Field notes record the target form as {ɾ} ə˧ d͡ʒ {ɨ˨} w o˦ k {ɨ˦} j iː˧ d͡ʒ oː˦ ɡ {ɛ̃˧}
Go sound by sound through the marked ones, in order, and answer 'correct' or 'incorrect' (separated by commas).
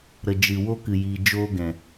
correct, correct, incorrect, incorrect